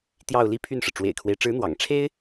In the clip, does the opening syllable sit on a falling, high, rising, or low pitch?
falling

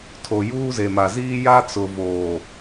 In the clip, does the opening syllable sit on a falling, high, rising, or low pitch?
low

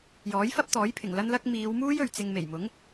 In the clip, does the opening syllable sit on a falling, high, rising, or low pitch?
rising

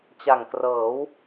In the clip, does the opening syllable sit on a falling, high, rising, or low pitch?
low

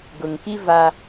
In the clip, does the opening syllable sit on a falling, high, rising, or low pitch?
low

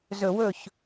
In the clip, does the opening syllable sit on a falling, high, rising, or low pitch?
low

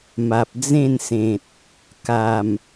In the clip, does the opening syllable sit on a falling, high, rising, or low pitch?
low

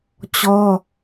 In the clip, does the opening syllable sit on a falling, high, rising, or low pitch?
high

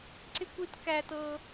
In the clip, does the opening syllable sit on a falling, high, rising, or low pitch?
high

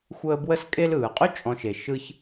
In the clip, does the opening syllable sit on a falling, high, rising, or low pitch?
high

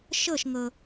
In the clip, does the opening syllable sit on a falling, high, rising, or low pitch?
falling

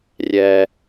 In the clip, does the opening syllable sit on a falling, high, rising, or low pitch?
low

